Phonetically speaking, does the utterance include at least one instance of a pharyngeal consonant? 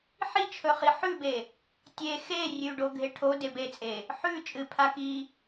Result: yes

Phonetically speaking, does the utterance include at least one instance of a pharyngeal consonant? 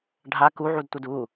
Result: yes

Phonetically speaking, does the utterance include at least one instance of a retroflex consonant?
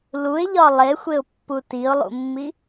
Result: no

